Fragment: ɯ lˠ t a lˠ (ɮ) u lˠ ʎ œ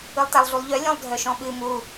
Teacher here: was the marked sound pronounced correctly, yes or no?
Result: yes